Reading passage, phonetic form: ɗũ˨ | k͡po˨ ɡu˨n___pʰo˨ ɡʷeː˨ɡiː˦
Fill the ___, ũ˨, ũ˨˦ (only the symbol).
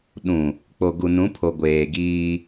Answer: ũ˨˦